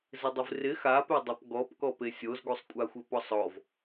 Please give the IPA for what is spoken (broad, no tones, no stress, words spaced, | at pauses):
zɪdˤɪvrɪ xapedˤap ɡɔpkɔpe sʲozɡusˤkʷʼaxʷɪ pɔsˤɔv